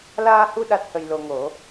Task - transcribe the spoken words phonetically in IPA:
laː˧hu˧ ɗa˦˥t̚hə˧jlo˧ŋo˨˩˦

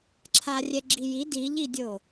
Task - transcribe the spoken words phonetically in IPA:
ǁʰarʲɛɡ͡ǁiji diʎidʲo

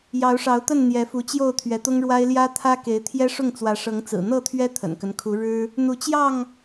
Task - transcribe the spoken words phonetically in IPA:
jɑ˨˦ʊ̯ʂɑ˨˦ʊ̯t̪ə˥˨n n̪jɛ˨˦fu˨˦t͡ɕjo˥˨ʊ̯ t̪ʰɥɛ˨˦t̪ʊ˦ŋɻwa˦ɪ̯ ljä˦t̪ʰä˦ ke˨˦ɪ̯t̪ʰjɛ˦ʂʊ˥˨ŋt͡swä˨˦ ʂɤ˨˦ŋt͡sɹ̩˨˩ n̪ɤ˥˨t̪ʰɥɛ˦ t̪ʰə̰˨˩nkə˦n kʰu˨˦ɻɻ̩˦ | n̪u˨˦t͡ɕjɑ˥˨ŋ

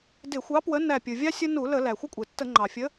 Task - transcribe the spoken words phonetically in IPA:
dɪ˧˩˧xʷɑ˨˥pwə˨˥ næ˧˩pʲɯ˩vʲɑ˦ sʲə˦ nu˧˩˧ lə˧˩˧ læ˩xʷɪ˦kʷʼe˩tːə˧˩˧ ŋ͡ǃɑ˩fʲə˨˥

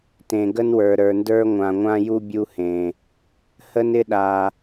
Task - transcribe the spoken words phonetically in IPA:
tẽ˨ɡə˦nwə˞˨ ɾə˞˨ndə˞˦ ŋʷã˨ŋʷã˦ju˦ bʲu˦hẽ˨ | hə˦nɪ˦ɗa˨

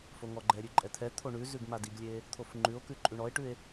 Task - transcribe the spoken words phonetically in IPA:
foŋɔɡ͡ǃɛɾʲʉ ǃʼɛt̪ʰɛt̪ʰo ɳʉzʉɡ madiɡlʲe | t̪ʰofŋ͡ǃʉo̯kʉ ǃʼʉɳɔe̯ʈʉe̯

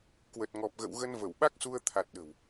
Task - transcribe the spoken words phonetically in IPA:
kwə˨˩t̚ŋɔ˨˩p̚ɣə̰˧˨wɣə˧n və˧˩wɓa˦˥k̚su˧ə̯ t̪ʰa˨˩t̚ ɗə̤˨˩w

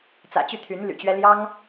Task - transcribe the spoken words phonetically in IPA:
t͡sä̰˨˩t͡ɕy˥˩ t̪ʰy˧˥nly̰˨˩t͡ɕɥɛ˥ ljɑ˥ŋ

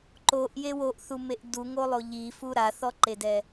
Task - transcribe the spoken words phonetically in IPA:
ǃoʔje woʔθumeʔ duŋolˠo ʎifu ɾaθɔǃedɛ

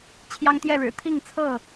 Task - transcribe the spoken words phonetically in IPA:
t͡ɕʰjɑ˦ŋt̪jɛ˥˨ɻɻ̩˨˩ t̪ʰi˥˨ŋt͡sʰɤ˥˨

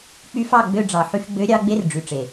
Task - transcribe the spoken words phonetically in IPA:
k͡py˧fɑ˦˨ ɡ͡bø˧ɖ͡ʐɑ˨ħy˧f ɡ͡bø˨˦ɾʲɑ˧ ɡ͡be˦rɖ͡ʐy˨ʈ͡ʂe˨

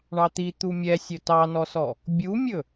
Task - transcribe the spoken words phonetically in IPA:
ɳɑt̪i t̪umʲɛsʲɵ tɑnɔsɔ | bʲumʲɵ

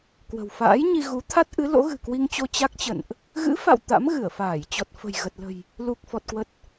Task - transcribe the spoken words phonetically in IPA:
kwə̤˨˩wfa̰ː˧˥jɲi˧ ɣu˨˦ t̪ʰa˦˥t̚ ʔɨ˨˦ lo̰˧˥ɣɨ̤˨˩kwi˧ŋt͡ɕo˧ t͡ɕa˦˥k̚t͡ɕə̰˧˨nʔ | ɣɨ̰˧˥fa̰˧˨w t̪a̰˧˥mɣɨ˧˩ə̯faː˧˩j t͡ɕɔ˨˩t̚fə̤˨˩j ɣə˨˩t̚lə̤˨˩j | lu˨˩k̚fɔ˨˩t̚kwə˨˩t̚

